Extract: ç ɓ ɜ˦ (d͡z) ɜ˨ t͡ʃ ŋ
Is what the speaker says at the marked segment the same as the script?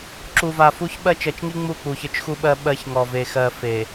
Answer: no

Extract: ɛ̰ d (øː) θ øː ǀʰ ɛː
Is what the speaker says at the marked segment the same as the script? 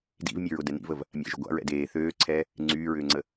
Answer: no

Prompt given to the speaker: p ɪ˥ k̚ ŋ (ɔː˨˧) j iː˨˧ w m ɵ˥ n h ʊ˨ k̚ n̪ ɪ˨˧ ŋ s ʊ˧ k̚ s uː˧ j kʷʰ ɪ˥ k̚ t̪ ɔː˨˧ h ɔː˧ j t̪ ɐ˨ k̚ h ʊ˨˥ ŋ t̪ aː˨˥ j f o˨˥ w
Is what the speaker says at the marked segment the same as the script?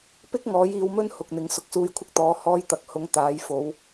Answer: no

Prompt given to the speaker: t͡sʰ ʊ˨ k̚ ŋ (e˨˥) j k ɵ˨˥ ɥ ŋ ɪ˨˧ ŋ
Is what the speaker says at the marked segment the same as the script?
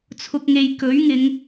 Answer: no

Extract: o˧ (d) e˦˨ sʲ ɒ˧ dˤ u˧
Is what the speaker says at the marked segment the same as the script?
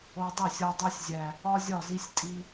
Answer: no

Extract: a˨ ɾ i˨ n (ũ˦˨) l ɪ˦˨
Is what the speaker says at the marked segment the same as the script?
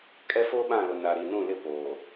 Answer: yes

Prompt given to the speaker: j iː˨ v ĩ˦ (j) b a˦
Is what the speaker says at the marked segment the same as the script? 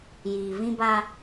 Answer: no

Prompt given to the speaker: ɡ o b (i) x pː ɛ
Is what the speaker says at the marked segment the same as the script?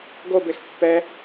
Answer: no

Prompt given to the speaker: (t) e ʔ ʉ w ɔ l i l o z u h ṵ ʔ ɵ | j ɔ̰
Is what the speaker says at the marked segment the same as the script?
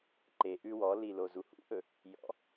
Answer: no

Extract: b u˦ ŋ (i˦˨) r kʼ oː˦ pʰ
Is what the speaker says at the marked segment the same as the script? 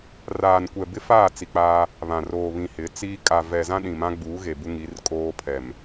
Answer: no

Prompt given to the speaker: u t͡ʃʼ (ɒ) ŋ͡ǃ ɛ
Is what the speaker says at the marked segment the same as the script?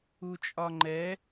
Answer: yes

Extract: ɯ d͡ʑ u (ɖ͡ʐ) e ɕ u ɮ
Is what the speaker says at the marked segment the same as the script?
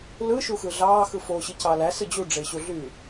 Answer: yes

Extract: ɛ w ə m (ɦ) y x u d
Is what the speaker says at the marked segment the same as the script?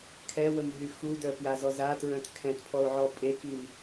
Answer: yes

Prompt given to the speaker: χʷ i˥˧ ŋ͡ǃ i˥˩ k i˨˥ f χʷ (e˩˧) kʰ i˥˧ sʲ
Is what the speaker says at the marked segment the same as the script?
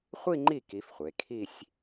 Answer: yes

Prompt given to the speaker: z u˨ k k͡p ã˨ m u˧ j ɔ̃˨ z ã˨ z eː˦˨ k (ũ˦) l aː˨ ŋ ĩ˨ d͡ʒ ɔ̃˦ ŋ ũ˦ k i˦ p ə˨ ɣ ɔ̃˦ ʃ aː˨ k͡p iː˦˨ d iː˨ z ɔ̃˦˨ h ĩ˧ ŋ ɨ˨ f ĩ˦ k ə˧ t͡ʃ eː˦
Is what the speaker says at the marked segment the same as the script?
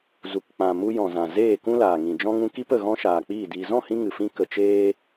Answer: yes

